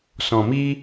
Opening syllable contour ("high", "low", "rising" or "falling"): low